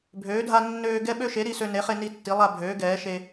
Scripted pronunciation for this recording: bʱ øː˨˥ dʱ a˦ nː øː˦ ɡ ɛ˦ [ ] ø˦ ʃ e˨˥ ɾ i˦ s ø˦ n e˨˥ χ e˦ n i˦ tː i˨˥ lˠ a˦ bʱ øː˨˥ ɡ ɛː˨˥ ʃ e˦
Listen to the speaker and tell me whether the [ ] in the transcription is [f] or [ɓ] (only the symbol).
ɓ